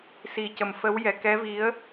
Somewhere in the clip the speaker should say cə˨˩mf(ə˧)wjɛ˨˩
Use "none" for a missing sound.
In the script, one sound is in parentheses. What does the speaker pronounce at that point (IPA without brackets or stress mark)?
ə˧˥